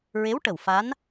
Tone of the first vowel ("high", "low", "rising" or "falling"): rising